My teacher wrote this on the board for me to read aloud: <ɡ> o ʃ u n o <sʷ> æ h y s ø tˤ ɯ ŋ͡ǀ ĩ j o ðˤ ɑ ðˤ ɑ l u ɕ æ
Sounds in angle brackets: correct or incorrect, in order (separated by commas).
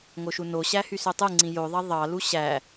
incorrect, incorrect